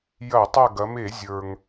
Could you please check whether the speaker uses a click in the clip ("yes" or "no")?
no